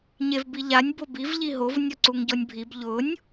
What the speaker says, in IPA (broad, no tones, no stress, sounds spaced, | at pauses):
ɲ e v b i ʎ a nʲ b o b i v ʎ i ɦ o v nʲ ɔ ǀ u ŋ ɟ ɔ nʲ bʱ i b ʎ ʊ nʲ